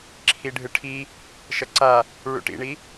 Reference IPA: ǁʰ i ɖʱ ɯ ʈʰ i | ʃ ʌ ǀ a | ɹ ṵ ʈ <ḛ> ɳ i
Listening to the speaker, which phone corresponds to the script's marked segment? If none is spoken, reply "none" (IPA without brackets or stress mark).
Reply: ḭ